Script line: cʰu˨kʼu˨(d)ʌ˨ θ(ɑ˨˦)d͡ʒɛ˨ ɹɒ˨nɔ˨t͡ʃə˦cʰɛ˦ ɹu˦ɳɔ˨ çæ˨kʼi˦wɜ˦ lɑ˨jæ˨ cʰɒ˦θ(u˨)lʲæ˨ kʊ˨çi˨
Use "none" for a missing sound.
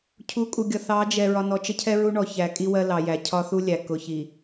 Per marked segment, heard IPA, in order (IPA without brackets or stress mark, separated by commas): ɡʲ, ɑ˨˦, u˦